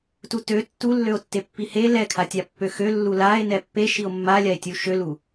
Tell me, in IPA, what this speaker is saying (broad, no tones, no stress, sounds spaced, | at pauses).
t u t ø tː u lː ø o̯ tː e pː i h e l ɛ kʰ a tʲ a pː ø x ø lː u l a e̯ n ɛ pː e ʃ i o̯ mː a lʲ a e̯ tʲ u ʃ ø l u